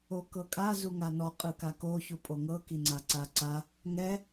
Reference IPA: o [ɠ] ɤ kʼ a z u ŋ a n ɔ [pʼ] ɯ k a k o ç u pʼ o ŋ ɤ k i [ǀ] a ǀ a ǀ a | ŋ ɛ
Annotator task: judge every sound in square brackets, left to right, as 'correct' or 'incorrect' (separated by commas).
incorrect, incorrect, incorrect